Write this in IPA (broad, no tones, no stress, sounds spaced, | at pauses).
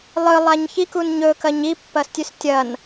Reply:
lˠ ɨ lˠ a ɲ ç i k u n ɲ ɵ k ɐ ɲ i pː ɐ s tʲ ʉ s tʲ ɐ n